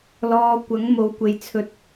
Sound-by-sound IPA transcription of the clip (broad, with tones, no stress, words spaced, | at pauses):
lɔː˨ kʷɐ˨˥ŋmo˨˧w kʷe˨jt͡sʰɵ˧t̚